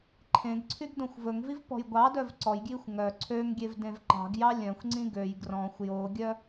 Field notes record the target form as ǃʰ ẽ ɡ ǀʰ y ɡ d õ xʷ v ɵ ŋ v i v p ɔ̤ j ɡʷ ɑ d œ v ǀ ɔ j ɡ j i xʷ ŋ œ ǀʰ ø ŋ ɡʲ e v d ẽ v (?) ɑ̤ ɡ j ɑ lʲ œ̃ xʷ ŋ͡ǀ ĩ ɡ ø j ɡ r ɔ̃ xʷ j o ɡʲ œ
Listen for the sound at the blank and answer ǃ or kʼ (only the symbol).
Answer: ǃ